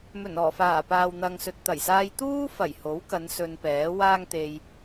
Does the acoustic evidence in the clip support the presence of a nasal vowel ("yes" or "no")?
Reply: no